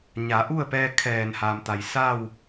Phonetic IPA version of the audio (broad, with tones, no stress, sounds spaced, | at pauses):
ɲ a˩˧ ʔ u˥˨ ə̯ p ɛː˧ kʰ ɛː˧˩ n h aː˩ m t̪ a˩ j s a˥˨ w